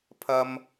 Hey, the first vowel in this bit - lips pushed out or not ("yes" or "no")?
no